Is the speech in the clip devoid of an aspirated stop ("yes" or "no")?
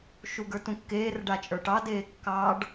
yes